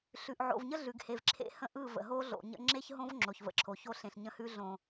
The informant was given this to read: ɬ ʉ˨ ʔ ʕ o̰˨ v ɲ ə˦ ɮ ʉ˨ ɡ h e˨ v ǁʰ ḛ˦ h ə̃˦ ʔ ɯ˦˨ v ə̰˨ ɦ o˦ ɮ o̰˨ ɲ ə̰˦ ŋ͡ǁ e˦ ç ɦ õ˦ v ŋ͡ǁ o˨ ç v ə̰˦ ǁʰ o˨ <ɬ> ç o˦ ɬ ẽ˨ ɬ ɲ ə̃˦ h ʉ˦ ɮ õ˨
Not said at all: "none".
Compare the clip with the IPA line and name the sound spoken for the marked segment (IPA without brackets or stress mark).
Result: none